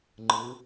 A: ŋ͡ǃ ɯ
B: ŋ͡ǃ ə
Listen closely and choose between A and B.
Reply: A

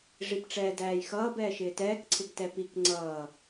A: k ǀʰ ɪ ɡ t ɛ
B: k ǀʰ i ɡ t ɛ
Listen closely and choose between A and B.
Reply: A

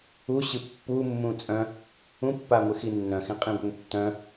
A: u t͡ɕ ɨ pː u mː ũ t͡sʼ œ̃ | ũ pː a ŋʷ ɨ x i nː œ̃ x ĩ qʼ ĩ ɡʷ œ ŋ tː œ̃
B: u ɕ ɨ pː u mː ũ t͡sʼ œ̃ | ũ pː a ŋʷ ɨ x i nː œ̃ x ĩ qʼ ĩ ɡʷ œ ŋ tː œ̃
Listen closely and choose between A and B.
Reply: B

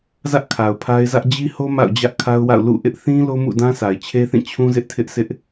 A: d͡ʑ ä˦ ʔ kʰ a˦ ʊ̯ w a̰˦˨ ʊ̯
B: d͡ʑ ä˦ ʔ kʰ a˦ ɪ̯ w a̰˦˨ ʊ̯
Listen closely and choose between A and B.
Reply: A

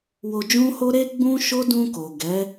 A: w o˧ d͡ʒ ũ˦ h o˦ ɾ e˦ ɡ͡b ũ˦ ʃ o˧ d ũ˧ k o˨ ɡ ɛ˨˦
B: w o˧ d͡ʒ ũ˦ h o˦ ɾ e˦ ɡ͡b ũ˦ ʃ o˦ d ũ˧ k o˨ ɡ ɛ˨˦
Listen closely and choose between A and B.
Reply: B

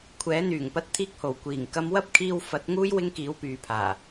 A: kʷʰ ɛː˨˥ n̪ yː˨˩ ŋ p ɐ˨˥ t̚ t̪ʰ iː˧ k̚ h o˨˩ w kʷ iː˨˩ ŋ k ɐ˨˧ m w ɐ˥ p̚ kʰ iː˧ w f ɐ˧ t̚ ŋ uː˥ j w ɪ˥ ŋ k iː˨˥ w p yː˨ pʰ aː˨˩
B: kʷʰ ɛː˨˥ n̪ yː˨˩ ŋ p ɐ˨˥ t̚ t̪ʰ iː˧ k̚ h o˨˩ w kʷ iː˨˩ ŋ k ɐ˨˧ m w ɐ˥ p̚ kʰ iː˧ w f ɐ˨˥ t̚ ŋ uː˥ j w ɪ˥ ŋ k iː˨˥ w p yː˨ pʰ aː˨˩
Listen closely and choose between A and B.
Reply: B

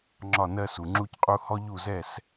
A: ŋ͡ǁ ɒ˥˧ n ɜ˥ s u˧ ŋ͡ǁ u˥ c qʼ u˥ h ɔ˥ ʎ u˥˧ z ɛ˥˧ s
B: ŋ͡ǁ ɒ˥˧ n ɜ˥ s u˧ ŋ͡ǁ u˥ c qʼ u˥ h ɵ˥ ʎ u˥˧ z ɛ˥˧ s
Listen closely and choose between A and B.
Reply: A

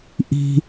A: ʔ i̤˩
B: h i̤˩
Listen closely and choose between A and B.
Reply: A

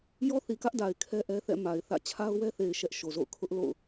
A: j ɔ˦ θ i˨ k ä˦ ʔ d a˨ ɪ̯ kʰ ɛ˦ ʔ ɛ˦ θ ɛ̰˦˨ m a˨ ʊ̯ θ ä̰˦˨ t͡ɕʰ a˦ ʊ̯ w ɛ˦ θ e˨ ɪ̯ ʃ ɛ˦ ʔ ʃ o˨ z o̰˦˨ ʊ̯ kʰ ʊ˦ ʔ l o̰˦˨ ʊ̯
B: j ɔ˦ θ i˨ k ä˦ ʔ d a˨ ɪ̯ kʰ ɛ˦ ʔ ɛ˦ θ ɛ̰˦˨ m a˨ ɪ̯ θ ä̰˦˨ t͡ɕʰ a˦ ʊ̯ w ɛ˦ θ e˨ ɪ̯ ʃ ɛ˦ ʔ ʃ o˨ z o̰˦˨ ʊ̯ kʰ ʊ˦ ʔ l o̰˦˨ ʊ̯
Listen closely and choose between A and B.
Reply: B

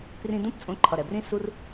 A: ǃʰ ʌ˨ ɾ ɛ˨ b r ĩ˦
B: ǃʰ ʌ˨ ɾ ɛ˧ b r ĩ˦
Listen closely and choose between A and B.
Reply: A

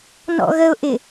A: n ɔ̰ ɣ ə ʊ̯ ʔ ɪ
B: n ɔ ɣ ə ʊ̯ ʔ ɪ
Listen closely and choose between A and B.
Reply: A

